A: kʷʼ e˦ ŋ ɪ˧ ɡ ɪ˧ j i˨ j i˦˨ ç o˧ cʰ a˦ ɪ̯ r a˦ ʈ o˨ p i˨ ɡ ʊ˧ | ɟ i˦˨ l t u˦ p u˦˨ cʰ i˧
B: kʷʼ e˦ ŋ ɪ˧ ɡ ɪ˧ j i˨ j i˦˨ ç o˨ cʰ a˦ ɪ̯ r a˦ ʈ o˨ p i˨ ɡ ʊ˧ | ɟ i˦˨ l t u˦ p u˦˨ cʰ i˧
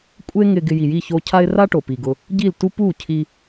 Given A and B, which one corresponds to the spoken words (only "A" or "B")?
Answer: A